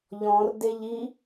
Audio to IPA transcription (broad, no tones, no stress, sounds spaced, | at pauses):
ʎ ɔ̃ r d e ʎ i